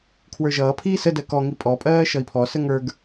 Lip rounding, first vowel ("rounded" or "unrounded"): unrounded